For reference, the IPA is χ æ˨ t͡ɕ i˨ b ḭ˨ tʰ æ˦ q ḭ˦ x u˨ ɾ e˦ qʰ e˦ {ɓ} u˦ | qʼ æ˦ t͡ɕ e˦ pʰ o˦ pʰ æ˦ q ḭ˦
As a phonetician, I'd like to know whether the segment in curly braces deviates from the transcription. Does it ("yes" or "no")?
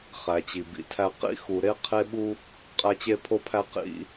no